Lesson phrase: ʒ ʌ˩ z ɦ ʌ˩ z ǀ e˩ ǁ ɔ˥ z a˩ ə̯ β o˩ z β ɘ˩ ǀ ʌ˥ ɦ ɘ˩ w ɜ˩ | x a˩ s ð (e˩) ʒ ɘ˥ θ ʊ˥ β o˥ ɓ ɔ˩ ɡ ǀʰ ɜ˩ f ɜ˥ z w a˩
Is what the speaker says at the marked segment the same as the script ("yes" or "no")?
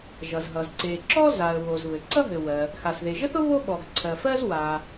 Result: yes